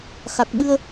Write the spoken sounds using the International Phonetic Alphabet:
x a˨˩ k̚ ɓ ɨ˧ ə̯

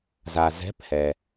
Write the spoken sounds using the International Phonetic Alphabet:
z a˨ z ɛ̤˧˥˧ p h ɛ˨

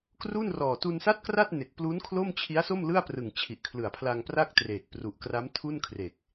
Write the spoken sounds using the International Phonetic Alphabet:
k r u˥˩ n r ɔː˨˩ t u˧ n s a˥˩ t̚ k r a˥˩ t̚ n e˨˩ k̚ p l u˦˥ n kʰ l o˥˩ m t͡ɕʰ i˦˥ a̯ s o˥˩ m l ɯ˥˩ a̯ p r ɯ˨˩ ŋ t͡ɕʰ i˨˩ ʔ kʰ l ɯ˨˩ a̯ pʰ l a˧ ŋ p r a˥˩ k̚ t r eː˨˩ k̚ p r u˨˩ ʔ k r a˦˥ m tʰ u˥˩ n kʰ r e˨˩ k̚

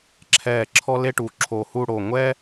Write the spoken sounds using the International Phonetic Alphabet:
ǁʰ ɛ˧˩ ǁʰ ɔ˥ l e˥ ʈ u˩˧ ǁʰ o˧˩ h u˥˧ ɽ o˧˩ ŋʷ ɛ˥

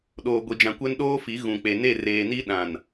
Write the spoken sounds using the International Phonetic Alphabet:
ɗ oː˨ ɡʷ i˨ d͡ʒ ã˨ kʷ ɛ˦ n ɗ oː˦ f i˨˦ ɣ ũ˨ k͡p e˨ n e˦˨ r eː˨ n i˦ ɗ ã˨ n

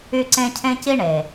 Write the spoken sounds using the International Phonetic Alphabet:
y˧ ǀ ẽ˧ cʰ ẽ˦ c i˦ ɳ e˨

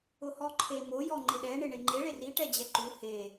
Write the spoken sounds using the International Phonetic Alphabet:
ʊ h ɔ ǃʰ e m o j ɔ ŋ͡ǃ ɪ ɗ ɛ ɳ ɪ ɳ e ŋ͡ǃ e ɭ e r i ʈ ɛ d͡ʑ ɛ ǃ u h e

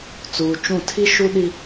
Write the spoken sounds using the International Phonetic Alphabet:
t͡s uː˨ t͡ʃ ũ˦˨ tʰ i˦ ʃ u˦ ɗ i˦

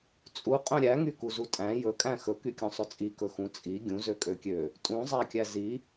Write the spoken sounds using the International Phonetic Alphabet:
t͡sʼ u qʼ œ̃ ɾʲ æ ŋ y k u z u tʼ æ̃ j ɵ kʼ æ̃ x ɵ k y kʲ ũ sˤ ɵ t͡sʼ i k ɵ x ũ t͡sʼ i ɡʲ ũ z ø kʼ ø kʲ ø | tʼ ũ zˤ æ kʲ æ z i

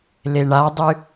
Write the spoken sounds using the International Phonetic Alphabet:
l e ɳ a dˤ ɨ

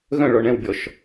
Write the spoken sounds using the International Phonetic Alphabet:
ɣ œ̃ ɭ ɔ ɳ ɛ̃ w bʲ ɔ ʃ

